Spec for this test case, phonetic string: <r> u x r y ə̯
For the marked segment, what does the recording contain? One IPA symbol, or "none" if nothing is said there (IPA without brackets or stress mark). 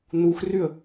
n